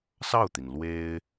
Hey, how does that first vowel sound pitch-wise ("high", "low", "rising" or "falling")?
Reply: falling